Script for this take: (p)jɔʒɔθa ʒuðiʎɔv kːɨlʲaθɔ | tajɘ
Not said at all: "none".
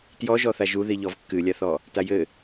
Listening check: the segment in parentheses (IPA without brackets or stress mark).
t